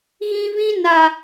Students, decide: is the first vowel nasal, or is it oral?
nasal